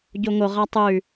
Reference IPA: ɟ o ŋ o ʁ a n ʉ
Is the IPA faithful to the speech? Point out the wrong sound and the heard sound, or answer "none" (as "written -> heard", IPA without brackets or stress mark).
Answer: n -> tˤ